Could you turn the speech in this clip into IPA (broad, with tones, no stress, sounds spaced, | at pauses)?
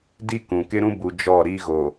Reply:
d i˦ k ũ˨ k ɪ˦ ɾ ũ˦ b u˨ d͡ʒ ɔ˦˨ ɾ i˦ ɣ o˨